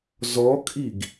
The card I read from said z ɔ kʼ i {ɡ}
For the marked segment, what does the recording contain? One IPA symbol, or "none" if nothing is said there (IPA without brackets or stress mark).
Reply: ɡ